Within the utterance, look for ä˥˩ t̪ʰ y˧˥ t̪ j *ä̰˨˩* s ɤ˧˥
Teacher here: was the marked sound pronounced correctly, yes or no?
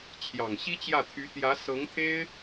no